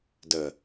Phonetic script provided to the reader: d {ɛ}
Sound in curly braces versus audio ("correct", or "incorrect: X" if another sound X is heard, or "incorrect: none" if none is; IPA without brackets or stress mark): incorrect: ə